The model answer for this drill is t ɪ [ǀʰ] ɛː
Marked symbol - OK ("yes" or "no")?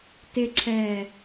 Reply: yes